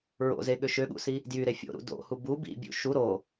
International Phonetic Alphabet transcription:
ɹ o̰ z e ɠ ø ʃ ø ɠ ṵ s i | d j y ɾ e fʲ o̰ ɾ ṵ d o̰ h u b u b ḭ bʲ ṵ ʃ u ɾ o

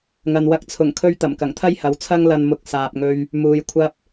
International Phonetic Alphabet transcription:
ŋ ɐ˨ n w ɐ˧ k̚ t͡sʰ ʊ˨˩ ŋ kʰ ɵ˧ ɥ t̪ ɐ˨˩ m k ɐ˨˩ ŋ t̪ʰ ɐ˥ j h ɐ˨˥ w t͡sʰ ɐ˥ ŋ l ɐ˧ n m ʊ˧ k̚ s aː˧ p̚ ŋ ɵ˥ ɥ | m uː˨˧ j kʷʰ ɐ˥ p̚

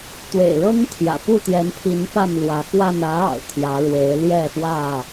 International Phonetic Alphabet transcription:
t̪ w ḛ˨˩ ɪ̯ ɻ ɤ˦ ŋ t̪ʰ j ä̰˨˩ p u˥˨ t̪ j ɛ˨˦ n pʰ i˨˦ n p a˥˨ n l w ä˨˦ x w a˥˨ n ä˨˦ ɑ̰˨˩ ʊ̯ t̪ʰ j ä˨˦ ɻ w e˨˦ ɪ̯ l j ɛ˥˨ f w ä˥˨

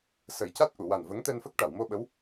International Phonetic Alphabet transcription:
s ə˨˩˦ j c a˦˥ t̚ ʔ u˨˩˨ w a˨˩ n v ə˧˥ ŋ t̪ ɛ˧ n f ə˦˥ k̚ ʈ a˨˩˨ w m o˧ ɓ ə˧˥ w

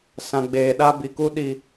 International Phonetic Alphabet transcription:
s ã˨ ɡ͡b eː˨ ɗ a˦ b i˨ k u˦ ɗ i˦

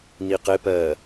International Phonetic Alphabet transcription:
n i q ɪ p ɜ

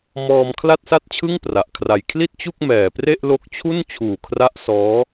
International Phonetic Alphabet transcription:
m ɔː˧ m kʰ l a˥˩ t̚ s a˥˩ t̚ t͡ɕʰ ɯ˥˩ ŋ p r a˨˩ ʔ kʰ r a˧ j kʰ l i˥˩ t̚ t͡ɕ u˥˩ k̚ m ɛː˨˩ p r e˥˩ ʔ l o˥˩ k̚ t͡ɕʰ u˥˩ n t͡ɕʰ uː˨˩ kʰ r a˦˥ ʔ s ɔː˦˥

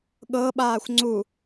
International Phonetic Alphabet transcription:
ɠ ɤ ɓ aː xʷ ŋ͡ǀ u

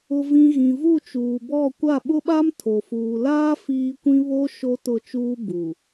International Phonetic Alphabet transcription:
ʊ˨ v ĩ˨ ɣ ĩ˨ v u˦˨ t͡ʃ uː˨ b ɔ˦˨ kʷ a˦˨ ɓ ʊ˦ ɓ a˦ m tʰ o˨ f uː˨ l aː˦ f iː˦ kʷ ĩ˦ β o˦ ʃ o˦ t ʊ˦˨ t͡ʃ uː˦ b uː˨

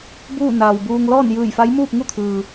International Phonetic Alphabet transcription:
b uː˥˨ n aː˩ w b uː˧ ŋ l ɔː˥˨ n j ɯː˧˩ j f a˧˥ j m uː˥˨ p̚ ŋ u˥˨ t̪ʰ ɯː˩

